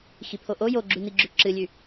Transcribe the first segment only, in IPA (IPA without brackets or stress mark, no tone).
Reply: x